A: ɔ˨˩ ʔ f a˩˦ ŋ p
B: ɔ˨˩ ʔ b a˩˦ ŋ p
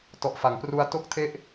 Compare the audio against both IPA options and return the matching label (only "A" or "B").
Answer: A